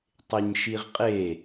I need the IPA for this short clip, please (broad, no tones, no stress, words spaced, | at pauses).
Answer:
tˤeɲʃiʁqʼe